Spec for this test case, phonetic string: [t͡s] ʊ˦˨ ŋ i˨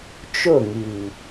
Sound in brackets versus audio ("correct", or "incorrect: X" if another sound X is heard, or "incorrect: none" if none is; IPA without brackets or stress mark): incorrect: t͡ʃ